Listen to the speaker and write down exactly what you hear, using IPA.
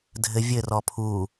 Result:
dʱ ɘ vʲ ɘ r ɔ pʰ u

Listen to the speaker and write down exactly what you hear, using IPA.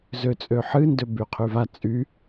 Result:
z ø t͡sʼ ø ħ ɨ n d ø b y qʰ y v a t͡sʼ y

